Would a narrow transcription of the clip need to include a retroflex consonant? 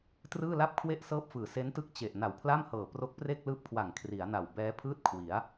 no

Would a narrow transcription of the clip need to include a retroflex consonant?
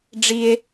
yes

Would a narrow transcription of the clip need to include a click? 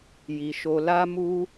no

